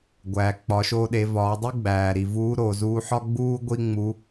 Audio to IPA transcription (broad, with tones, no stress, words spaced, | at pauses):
ɡʷæː˩k͡pɒ˩˧ʃoː˧ ɗe˩˧vɒː˩˧dˤu˥ ɡ͡bæː˩ɾi˩ vuː˧˥ɾoː˩zuː˧ħɒ˥ ɡ͡buː˥ ɡʷi˥ŋ͡mu˧˥